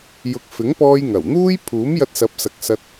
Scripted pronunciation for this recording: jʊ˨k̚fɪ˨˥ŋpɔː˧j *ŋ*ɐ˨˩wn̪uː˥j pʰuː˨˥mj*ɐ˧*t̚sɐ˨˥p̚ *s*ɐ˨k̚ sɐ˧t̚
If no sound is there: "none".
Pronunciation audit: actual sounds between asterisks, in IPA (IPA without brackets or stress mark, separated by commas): ŋ, ɐ˧, s